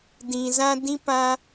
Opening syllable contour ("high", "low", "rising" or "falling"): low